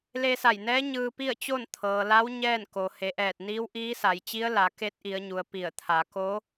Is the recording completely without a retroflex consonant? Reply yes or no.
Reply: yes